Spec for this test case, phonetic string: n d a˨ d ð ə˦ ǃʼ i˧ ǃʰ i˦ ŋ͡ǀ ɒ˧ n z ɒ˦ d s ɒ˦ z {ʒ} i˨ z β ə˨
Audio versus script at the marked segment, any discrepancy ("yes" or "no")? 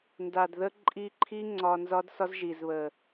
no